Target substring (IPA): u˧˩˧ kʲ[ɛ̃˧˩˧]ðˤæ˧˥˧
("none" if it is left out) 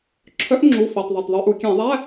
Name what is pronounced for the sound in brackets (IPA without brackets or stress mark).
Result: ɛ̃˧˩˧